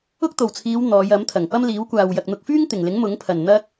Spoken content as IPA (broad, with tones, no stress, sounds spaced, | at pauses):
ʊ˥ k̚ t̪ o˨˩ w t͡sʰ iː˨˧ w n̪ ɔː˨˧ j ɐ˨˥ m t̪ʰ ɐ˨˩ ŋ p ɐ˥ m l iː˨˥ w kʷ aː˨ w j ɐ˨ k̚ n̪ ʊ˧ k̚ f yː˥ ŋ t̪ ɪ˨˩ ŋ l ɪ˨˥ ŋ m ʊ˨˥ ŋ pʰ ɐ˨˩ n n̪ ɐ˥ k̚